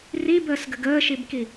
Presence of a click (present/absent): absent